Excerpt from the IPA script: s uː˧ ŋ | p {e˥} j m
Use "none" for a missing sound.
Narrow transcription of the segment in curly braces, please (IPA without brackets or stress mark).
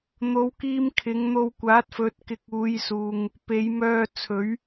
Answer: e˨˧